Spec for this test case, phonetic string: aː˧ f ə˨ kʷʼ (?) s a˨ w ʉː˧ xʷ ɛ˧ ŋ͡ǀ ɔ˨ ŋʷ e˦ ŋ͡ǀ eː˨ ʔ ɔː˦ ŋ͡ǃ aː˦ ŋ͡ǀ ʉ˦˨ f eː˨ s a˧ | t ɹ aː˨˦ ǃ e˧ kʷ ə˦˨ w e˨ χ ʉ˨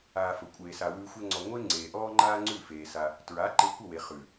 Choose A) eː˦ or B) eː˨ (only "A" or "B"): B